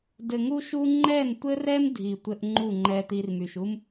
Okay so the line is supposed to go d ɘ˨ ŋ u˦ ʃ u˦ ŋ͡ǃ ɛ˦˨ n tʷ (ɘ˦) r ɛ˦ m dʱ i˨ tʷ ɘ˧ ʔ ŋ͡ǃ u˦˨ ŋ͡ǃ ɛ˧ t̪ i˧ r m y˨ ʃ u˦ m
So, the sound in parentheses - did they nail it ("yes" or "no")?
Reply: yes